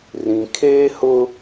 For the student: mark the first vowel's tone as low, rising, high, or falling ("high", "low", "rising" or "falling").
low